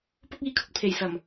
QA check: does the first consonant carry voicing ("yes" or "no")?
no